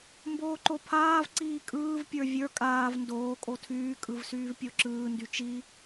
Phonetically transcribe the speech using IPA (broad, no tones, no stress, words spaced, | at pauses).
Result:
mboːǃopʰaːv ǀiːkʼɯːv pʲə˞vʲə˞ kʼaːv ndoː kʼotʰyː kʼɯvsyːvpʲoǁɯː ndyt͡ʃi